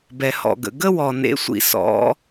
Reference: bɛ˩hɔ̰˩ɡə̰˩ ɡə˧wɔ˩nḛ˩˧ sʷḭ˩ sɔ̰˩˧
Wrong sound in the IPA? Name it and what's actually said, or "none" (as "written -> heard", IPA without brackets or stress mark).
none